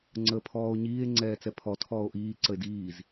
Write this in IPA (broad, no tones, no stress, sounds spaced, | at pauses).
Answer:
ŋ͡ǀ əː pʰ ɔː o̯ ɲ iː e̯ ŋ͡ǀ ɛː t͡s ɛ pʰ ɔ tʰ ɔː o̯ ʔ iː ǀ ə e̯ d iː z